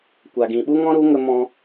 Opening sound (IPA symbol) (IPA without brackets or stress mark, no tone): kʷ